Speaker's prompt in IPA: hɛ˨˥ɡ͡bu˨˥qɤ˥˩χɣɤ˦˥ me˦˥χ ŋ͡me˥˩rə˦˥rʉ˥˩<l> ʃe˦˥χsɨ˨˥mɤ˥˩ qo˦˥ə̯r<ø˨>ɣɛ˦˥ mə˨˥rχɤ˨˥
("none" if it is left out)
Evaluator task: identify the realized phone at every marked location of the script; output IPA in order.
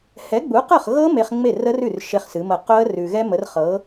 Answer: r, ʉ˨

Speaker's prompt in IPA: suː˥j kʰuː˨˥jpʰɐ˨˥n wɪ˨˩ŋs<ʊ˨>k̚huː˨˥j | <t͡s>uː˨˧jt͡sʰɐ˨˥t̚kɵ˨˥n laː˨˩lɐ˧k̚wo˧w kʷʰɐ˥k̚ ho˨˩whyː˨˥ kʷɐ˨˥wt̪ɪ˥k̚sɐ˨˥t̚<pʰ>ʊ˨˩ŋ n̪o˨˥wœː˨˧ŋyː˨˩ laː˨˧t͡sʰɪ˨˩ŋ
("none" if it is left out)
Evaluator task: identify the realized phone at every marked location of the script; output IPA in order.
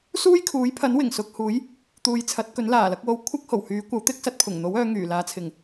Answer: ʊ˨, t̪, pʰ

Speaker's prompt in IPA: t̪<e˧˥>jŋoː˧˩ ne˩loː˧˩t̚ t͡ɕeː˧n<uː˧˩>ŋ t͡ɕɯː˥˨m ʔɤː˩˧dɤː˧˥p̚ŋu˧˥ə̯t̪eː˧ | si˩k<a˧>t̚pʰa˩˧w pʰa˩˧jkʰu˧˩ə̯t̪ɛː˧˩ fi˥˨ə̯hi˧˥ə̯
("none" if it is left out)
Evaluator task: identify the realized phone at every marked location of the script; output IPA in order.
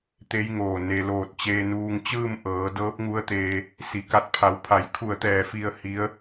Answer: e˧˥, uː˧, a˧

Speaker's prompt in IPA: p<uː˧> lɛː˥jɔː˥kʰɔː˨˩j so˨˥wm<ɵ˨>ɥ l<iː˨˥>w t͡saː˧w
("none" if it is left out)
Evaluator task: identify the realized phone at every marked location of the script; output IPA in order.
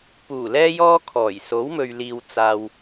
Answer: uː˨˩, ɵ˨, iː˨

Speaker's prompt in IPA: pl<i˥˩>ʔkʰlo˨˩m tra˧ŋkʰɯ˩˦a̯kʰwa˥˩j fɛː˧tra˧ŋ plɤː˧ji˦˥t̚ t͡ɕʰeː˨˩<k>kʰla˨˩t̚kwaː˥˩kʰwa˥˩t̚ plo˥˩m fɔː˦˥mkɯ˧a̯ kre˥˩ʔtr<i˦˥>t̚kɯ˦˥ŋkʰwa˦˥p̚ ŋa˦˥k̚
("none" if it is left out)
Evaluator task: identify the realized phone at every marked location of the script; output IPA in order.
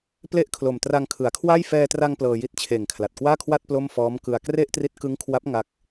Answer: e˥˩, ŋ, i˦˥

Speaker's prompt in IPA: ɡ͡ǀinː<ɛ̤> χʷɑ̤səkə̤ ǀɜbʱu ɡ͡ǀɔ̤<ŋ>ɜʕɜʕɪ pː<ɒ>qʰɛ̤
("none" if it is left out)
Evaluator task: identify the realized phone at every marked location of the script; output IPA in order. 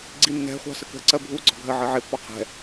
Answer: ɛ̤, ɡʱ, ɒ

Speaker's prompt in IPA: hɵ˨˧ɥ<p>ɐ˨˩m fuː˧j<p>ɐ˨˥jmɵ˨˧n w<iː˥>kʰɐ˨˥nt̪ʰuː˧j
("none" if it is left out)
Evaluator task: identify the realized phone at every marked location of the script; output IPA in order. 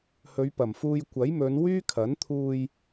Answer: p, kʷ, yː˥

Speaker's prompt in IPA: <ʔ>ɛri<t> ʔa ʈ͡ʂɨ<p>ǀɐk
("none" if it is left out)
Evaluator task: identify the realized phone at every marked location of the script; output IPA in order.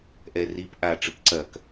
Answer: ʔ, p, p

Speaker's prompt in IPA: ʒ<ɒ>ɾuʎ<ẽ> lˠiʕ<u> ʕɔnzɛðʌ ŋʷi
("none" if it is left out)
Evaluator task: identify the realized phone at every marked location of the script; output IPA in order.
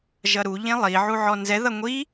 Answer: ʌ, ẽ, u

